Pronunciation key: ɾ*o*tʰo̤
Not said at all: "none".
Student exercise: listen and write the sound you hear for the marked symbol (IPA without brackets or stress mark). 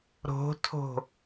o̤